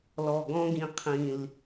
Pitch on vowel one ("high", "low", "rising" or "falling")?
low